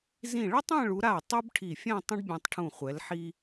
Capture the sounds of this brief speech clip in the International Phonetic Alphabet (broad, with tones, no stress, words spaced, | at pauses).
zĩ˧˩ɭə˥tˤɛ̃˥˧ɭu˩˧ ɾa˧˩ tˤu˥bʈʰi˧˩fʲɛ̃˥˧ tˤə̃˥ɖbʲɛ̃˧tˤʈʰũ˧˩ χʷɛ˩˧lħi˧